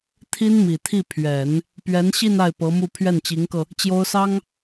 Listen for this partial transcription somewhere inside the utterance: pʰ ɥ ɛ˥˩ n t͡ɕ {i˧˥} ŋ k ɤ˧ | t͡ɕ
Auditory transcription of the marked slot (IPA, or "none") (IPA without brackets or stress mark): i˧˥